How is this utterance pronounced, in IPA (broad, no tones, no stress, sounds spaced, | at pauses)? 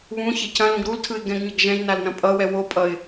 β ũ ç ɛ c ɐ̃ l ũ ɡ ɾ u l tʰ ɯ ɪ̯ ɡ ɛ̃ ɡ ɲ ʌ ɡ ʒ ɛ̃ ʒ n a l n ɐ̃ pʼ ʌ w ɛ w o pʼ ʌ ɪ̯